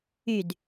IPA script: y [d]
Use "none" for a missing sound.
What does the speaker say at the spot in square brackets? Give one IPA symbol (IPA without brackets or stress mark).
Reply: d